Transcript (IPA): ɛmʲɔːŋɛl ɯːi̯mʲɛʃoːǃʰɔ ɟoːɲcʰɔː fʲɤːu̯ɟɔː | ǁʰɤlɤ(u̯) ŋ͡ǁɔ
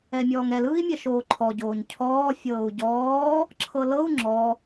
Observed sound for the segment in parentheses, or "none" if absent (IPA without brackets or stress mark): u̯